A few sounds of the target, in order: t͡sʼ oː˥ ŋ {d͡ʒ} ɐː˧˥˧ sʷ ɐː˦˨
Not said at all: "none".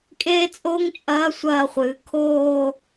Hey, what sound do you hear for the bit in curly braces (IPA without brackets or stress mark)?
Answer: t͡ʃʼ